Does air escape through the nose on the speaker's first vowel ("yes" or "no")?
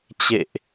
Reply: no